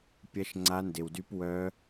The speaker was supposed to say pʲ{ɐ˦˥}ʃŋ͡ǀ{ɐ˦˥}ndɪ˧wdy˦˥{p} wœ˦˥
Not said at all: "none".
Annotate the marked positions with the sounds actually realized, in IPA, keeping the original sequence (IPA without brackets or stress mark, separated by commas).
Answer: ɐ˦˥, a˦˥, p